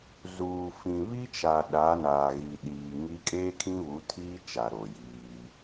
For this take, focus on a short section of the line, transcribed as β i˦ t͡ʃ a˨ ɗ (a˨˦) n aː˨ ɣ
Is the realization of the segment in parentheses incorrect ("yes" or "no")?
no